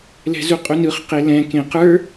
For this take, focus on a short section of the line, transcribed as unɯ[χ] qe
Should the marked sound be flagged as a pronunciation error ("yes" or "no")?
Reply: no